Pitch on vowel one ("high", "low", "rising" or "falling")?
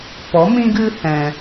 rising